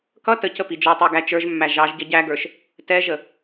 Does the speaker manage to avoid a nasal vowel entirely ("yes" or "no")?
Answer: yes